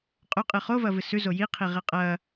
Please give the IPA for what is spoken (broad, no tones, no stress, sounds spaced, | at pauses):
qʼ ɵ qʼ ɨ χ o v ɐ v ɨ s ʉ z o j i qʰ i ʁ e qʼ ɐ